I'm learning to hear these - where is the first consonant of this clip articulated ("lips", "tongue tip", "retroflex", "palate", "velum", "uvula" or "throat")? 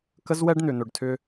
velum